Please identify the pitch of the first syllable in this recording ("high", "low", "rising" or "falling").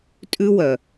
high